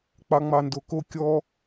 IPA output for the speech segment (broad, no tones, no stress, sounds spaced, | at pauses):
k͡p ɑ ŋ͡m ɑ n d o k o kʲ ɔ